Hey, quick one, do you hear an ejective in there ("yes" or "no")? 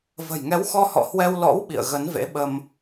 no